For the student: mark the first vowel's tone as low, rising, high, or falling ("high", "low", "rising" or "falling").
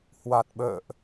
low